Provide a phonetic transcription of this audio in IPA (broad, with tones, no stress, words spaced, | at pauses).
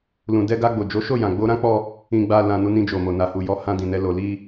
lũ˨dɛ˧ɡa˧ ɡ͡bo˨d͡ʒo˨˦ʃo˦˨ jã˨ɡ͡bo˧ɾã˦k͡pɔ˧ | ĩ˨ɡ͡ba˨lã˨ nu˧nĩ˧d͡ʒo˨mo˨ na˨hu˨jɔ˨˦ hã˧dĩ˨nɛ˨˦ lo˧li˦